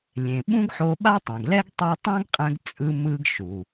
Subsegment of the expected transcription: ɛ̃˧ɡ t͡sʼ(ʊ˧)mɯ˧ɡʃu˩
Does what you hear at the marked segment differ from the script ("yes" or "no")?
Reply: yes